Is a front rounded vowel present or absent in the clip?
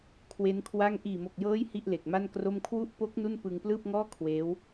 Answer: absent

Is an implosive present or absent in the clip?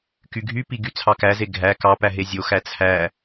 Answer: absent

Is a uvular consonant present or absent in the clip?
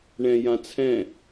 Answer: absent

